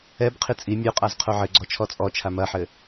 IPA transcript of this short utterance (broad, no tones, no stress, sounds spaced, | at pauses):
ɛ b qʰ i t͡sʼ i mʲ o qʼ a z qʰ o ʕ ɘ ɡ͡ǀ ɔ t͡ʃʰ ɔ t͡sʼ ɔ t͡ʃʰ a m ɐ ħ ɘ